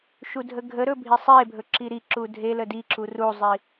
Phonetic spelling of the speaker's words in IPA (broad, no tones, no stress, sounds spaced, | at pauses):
ʃ u dʱ ə ɡʱ ə ɾ ɵ bʱ i sˤ e bʱ ɵ ǁ i ɾ i ǁ u dʱ e l ə d i ǁ u r u zˤ i